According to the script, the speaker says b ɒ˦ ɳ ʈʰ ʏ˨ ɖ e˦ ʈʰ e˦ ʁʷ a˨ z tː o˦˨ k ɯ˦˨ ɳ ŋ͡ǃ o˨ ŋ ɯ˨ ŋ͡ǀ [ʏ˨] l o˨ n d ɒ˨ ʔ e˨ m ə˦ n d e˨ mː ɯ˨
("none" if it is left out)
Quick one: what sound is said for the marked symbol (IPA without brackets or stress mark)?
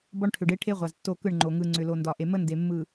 ʏ˨